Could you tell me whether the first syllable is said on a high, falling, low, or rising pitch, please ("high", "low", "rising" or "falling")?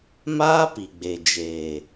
high